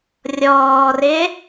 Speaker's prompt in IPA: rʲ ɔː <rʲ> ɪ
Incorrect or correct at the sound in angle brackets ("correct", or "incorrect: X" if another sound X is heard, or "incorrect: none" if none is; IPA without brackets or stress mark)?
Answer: incorrect: r